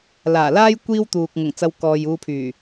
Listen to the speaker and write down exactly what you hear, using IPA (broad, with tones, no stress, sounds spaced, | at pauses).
l aː˨˩ l aː˥ j kʷ iː˥ w t̪ uː˨ k̚ ŋ ʊ˨˩ ŋ t͡s ɐ˧ w k ɔː˨ j uː˧ pʰ yː˨˩